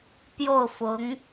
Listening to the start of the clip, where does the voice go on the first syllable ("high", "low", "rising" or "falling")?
falling